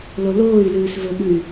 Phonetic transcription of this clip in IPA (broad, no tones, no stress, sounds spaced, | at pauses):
l o l oː y̯ l ʉː s v ɵ ɠ ʉ y̯